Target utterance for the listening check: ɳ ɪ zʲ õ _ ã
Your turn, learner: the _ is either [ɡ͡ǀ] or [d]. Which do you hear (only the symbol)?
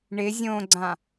ɡ͡ǀ